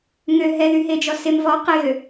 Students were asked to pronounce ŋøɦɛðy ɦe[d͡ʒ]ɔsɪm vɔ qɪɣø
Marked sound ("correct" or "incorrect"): correct